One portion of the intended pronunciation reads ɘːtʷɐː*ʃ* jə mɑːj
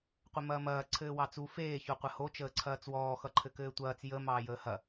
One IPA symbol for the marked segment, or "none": t͡s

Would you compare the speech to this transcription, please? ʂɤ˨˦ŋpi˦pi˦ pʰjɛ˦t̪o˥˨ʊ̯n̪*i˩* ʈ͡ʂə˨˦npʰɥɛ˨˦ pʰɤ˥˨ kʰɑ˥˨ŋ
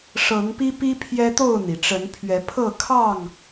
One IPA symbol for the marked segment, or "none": i˩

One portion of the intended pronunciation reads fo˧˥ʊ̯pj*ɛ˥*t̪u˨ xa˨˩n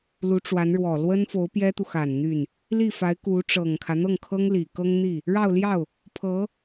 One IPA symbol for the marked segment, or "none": ɛ˥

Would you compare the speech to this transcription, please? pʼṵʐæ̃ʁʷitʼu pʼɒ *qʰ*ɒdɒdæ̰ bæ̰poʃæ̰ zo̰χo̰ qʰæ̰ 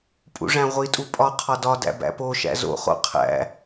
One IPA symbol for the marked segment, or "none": qʰ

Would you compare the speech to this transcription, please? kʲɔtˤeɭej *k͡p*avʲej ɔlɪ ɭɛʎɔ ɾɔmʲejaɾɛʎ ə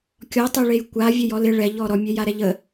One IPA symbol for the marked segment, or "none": kʷ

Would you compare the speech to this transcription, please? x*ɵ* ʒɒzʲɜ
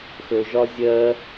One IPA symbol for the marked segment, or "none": ɵ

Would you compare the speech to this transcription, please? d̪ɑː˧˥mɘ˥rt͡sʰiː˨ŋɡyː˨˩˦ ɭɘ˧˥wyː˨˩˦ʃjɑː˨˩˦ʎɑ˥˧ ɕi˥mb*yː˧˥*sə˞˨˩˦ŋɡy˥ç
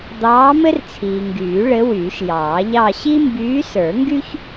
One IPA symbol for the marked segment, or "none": yː˧˥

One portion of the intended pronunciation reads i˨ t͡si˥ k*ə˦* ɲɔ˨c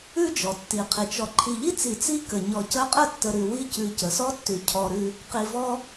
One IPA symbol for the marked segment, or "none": ə˨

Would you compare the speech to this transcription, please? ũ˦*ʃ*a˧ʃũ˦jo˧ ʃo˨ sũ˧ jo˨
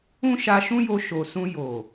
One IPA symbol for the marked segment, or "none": ʃ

